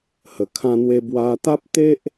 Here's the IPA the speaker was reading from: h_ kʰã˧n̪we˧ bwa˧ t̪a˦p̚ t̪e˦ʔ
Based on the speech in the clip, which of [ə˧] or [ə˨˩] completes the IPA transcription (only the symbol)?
ə˨˩